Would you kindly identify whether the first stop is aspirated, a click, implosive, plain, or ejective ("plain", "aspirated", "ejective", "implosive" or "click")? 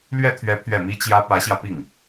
aspirated